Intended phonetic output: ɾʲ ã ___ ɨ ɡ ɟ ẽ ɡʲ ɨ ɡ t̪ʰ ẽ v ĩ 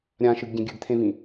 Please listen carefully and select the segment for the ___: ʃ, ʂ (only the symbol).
ʃ